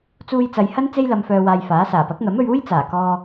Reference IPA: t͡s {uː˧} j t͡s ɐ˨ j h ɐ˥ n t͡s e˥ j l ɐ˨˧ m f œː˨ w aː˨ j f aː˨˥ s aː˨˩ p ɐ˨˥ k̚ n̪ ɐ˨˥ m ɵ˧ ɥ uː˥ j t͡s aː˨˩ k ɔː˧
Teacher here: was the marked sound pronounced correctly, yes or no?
yes